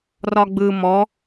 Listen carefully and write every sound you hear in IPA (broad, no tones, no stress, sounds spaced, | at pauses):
r ɒ ɡ͡b ɯ m ɔ